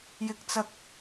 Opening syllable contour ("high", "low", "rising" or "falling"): high